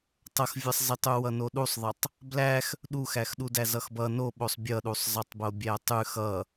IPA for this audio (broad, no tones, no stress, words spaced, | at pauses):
tˤʌxvʲʌsˤzitˤu wʌnoɗusˤðˤʌtˤ | blæx | ɗuxæx ɗudæzʌxbʌ noɓosˤ bʲʌɗusˤ zˤʌtˤbobʲætˤʉ xʌ